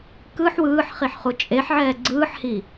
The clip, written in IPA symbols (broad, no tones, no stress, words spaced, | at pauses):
kɯħ wɯːħχiħχu t͡ʃʼeħʕɛː ɡ͡ǀɯːħhi